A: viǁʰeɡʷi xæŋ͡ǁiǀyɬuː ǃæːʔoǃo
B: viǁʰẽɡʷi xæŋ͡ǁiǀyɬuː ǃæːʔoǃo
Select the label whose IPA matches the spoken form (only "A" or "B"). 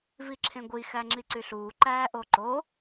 B